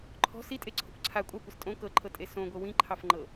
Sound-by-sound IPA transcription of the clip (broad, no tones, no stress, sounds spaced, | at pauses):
ǃʰ ɔ̤ s i tʼ e ǀʰ o̤ kʷ ǀʰ a kʷʼ a kʷ i s tʼ õ k ɤ ǃʰ ɤ tʼ e s õ ɡʷ ɤ w ĩ ǃʰ ɑ f ŋ͡ǃ ɤ